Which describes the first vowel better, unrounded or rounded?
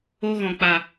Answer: rounded